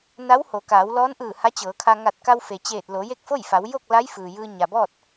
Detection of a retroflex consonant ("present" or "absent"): absent